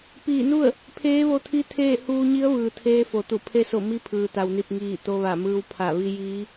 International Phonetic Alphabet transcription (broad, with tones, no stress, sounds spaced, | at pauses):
p iː˧˩ n u˥˨ ə̯ | pʰ eː˧˥ ʋ o˧ t̪ʰ i˧˥ t̪ʰ eː˥˨ h uː˧ ɲ i˧˥ ə̯ ʋ ɯː˩ t̪ʰ eː˧ f o˩ t̪ u˧˩ pʰ e˧ s o˧˩ m i˧˥ pʰ ɯː˩ t̪ a˩ w n i˧˩ p̚ ŋ iː˧˩ t̪ o˧ ʋ a˧˩ m ɯː˧ w pʰ a˧˩ ʋ i˧ j iː˧˥